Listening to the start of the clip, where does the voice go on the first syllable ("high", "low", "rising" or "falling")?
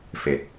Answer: low